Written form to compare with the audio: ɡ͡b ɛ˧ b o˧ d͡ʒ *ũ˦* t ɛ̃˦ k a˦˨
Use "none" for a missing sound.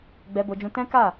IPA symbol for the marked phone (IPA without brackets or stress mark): ũ˧